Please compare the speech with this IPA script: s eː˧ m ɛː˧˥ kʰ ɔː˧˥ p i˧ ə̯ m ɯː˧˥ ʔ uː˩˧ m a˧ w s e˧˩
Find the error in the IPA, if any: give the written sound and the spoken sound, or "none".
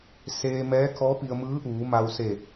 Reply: none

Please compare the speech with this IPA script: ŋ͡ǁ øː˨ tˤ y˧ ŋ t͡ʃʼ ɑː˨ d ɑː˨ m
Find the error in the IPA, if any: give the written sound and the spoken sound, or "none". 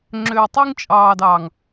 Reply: m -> ŋ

